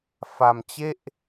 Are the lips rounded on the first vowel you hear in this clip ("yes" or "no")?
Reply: no